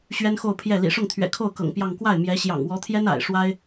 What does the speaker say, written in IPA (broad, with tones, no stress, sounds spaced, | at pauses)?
ɕ ɥ ɛ˥ n x o˥˧ ʊ̯ pʰ j ɛ˥˩ l ḭ˨˩ ʂ ʊ˥˩ ŋ t̪ʰ ɥ ɛ̰˨˩ kʰ o˥˩ ʊ̯ k ɤ̰˨˩ ŋ p j ɑ˥˧ ŋ k w a˥˩ ɪ̯ m j ɛ˧˥ ɕ j ɑ̰˨˩ ŋ w ɔ˧˥ t̪ʰ j ɛ˥ n a̰˨˩ ɪ̯ ʂ w a˥ ɪ̯